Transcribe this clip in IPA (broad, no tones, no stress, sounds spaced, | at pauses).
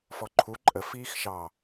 f ɔ ǃʰ u ǃʼ ə f iː x ʃ ɑ